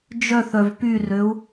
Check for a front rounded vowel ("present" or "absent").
present